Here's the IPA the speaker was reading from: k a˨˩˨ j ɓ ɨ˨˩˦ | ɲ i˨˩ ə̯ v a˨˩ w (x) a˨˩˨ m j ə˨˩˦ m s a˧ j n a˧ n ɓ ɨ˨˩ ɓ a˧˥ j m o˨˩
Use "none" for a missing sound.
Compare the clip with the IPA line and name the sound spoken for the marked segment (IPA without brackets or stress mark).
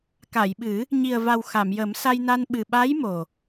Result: x